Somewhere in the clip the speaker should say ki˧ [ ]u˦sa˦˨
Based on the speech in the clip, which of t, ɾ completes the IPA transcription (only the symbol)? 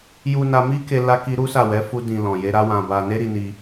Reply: ɾ